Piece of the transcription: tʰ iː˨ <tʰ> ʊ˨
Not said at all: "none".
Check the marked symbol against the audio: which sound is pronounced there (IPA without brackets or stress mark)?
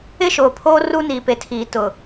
t